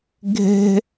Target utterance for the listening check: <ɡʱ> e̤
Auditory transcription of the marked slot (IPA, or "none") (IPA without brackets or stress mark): ɡʱ